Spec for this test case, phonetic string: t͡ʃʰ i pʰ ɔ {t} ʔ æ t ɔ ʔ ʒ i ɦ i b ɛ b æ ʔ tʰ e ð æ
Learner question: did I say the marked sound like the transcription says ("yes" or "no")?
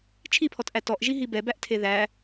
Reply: yes